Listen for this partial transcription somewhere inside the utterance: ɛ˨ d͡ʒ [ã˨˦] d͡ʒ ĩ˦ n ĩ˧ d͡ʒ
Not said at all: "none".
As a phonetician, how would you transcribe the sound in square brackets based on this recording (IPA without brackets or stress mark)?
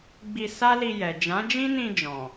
ã˨˦